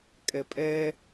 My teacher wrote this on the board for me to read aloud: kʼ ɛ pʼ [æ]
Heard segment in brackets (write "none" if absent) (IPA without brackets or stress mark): ɛ